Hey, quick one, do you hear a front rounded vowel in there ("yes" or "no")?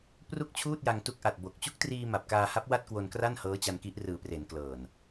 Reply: no